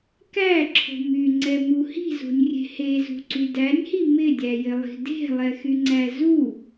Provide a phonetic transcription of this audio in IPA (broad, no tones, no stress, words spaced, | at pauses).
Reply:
kæǁʰo̤ myŋ͡ǀɛmu hi̤zo̤nʲrʲe̤ hezṳǀy dænʲhi mɪdʲæjɪlˠi̤ de̤lˠɛxyŋ͡ǀæ zu